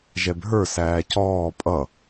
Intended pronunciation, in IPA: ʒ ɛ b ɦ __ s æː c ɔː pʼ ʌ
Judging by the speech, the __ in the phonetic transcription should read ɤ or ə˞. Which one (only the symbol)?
ə˞